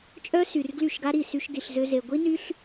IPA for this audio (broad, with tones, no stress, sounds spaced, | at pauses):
t͡ʃʼ œ˦ s y˨ r ɡ l y˦˨ ʃ ɡ a˦ ɾ i˦˨ s y˧ ʃ d i˨ ɬ z ø˧ z e˨ ɡʷ i˦ n y˦ ɬ